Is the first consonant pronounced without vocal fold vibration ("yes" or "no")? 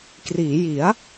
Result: yes